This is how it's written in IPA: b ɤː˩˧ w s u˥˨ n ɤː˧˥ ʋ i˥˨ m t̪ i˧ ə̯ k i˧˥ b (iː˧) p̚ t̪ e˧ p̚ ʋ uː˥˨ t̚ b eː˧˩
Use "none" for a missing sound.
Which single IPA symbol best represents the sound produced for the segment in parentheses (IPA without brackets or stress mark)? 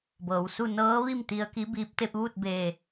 iː˧˥